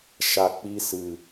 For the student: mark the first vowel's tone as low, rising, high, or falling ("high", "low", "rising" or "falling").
low